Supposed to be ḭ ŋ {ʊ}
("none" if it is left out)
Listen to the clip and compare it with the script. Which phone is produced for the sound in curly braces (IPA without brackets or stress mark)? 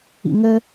ə